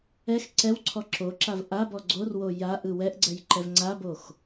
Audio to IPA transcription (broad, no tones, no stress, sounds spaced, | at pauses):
ɛ x ǀ ɛ w ǀʰ ɔ ǁ o ǁ a v ʔ a b ɔ ɡ͡ǀ o r w o j a ʔ ɯ w ɛ ʔ ɡ͡ǀ ɛ j ǃ ɛ v ŋ͡ǀ a b o x